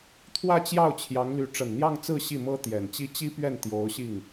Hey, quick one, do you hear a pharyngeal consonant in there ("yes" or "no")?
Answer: no